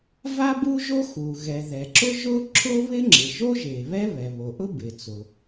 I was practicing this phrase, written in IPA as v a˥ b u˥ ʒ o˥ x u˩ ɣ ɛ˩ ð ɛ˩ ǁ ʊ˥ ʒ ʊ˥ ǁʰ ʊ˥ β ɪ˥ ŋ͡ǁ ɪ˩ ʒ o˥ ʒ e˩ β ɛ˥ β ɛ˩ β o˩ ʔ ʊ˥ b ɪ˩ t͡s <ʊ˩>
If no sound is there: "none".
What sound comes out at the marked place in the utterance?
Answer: ʊ˩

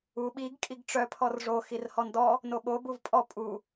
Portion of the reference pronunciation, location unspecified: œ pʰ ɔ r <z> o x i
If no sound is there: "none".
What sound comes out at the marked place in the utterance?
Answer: ʐ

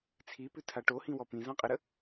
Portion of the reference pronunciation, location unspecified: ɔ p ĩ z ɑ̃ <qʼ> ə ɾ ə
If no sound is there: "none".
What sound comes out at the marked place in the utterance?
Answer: qʼ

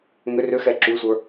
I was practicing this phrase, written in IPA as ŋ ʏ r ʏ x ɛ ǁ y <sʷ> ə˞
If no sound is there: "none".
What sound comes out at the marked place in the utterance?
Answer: sʷ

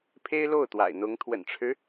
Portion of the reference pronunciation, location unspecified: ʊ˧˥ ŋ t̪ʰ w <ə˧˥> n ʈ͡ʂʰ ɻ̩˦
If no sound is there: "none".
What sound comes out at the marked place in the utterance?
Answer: ə̰˨˩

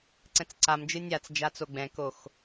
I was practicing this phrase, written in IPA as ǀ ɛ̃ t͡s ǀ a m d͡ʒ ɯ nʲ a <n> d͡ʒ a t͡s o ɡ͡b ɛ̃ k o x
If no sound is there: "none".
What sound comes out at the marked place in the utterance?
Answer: t͡s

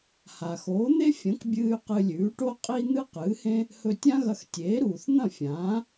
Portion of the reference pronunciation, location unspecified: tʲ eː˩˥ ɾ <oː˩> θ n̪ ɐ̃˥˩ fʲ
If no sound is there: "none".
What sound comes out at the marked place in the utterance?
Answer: uː˩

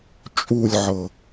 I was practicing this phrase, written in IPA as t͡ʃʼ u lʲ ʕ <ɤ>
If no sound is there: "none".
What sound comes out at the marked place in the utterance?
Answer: ɤ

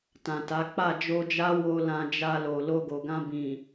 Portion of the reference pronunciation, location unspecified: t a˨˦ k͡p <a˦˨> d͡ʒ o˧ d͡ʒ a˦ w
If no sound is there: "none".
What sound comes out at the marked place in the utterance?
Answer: a˦˨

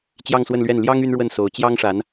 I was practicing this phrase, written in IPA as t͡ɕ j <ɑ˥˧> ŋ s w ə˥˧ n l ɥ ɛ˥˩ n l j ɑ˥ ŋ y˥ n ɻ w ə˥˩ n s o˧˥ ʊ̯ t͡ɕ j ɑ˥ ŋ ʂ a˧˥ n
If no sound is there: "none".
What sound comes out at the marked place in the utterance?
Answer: ɑ˥˧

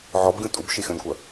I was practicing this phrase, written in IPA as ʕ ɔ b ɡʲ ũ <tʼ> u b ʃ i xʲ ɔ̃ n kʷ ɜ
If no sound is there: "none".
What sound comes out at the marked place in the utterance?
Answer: tʼ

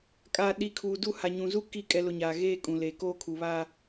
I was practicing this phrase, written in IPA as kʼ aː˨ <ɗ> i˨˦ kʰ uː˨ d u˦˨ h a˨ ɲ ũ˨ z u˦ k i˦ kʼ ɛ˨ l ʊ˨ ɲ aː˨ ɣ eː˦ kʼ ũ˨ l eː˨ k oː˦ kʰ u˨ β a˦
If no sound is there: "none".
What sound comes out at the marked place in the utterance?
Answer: ɗ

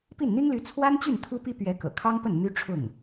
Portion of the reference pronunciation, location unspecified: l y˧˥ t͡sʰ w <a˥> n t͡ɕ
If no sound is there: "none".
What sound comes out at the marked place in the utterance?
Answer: a˥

